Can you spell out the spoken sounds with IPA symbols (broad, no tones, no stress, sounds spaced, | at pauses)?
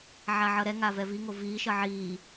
ʕ a ʕ ʌ ɾ ɛ ŋ a v ɛ v i ŋ o v iː ʃ ʌ ʕ iː